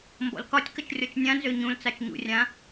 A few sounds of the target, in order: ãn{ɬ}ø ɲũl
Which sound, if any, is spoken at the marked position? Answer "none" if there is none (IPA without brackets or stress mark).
z